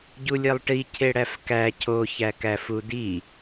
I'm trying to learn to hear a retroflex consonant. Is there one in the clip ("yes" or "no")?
yes